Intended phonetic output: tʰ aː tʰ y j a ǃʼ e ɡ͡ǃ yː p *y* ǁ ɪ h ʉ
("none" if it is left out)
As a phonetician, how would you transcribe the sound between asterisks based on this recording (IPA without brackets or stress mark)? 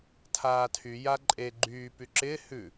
y